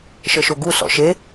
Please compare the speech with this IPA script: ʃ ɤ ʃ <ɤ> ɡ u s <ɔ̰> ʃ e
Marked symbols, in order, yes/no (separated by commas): no, yes